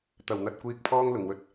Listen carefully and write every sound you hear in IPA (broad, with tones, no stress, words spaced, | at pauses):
t̪ɐ˨˩wn̪ɐ˨t̚ kʷiː˧k̚pʰɔː˥ŋ lʊ˨˩ŋwɵ˨t̚